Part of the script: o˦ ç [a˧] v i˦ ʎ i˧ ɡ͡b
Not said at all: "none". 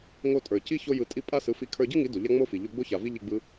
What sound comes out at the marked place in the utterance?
a˨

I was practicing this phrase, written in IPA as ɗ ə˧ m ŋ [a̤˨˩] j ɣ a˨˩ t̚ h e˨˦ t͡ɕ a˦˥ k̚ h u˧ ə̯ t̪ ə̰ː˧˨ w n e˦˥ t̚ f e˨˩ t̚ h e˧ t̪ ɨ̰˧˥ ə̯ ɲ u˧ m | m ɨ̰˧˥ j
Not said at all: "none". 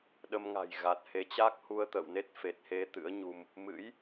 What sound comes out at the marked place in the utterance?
a̤˨˩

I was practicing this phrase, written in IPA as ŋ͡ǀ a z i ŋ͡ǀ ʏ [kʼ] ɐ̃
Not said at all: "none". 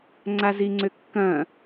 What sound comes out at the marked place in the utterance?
kː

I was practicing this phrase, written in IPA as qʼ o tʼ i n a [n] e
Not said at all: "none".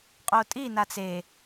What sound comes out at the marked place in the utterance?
t͡s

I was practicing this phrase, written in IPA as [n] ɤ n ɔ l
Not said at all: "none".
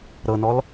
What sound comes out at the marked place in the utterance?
ɾ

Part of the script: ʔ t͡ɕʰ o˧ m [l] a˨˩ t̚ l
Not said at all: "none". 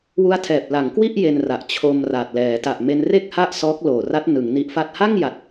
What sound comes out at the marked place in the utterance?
r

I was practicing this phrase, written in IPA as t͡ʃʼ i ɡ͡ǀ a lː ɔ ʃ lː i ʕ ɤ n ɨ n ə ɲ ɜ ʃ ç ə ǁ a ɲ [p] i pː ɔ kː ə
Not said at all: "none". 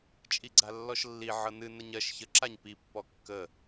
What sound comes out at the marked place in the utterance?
p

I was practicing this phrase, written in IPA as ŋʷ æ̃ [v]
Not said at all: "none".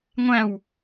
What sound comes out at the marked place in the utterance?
w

